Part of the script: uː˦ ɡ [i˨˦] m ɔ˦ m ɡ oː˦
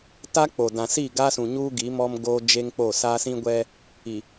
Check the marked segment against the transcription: correct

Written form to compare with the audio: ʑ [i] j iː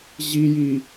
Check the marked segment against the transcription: correct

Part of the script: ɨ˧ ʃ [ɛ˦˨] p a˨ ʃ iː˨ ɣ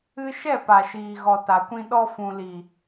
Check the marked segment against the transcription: correct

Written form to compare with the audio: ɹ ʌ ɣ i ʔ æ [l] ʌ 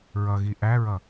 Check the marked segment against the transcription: incorrect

